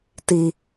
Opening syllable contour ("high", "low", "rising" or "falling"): low